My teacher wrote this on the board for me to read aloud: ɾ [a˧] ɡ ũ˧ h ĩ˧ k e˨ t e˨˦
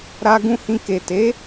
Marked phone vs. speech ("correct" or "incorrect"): correct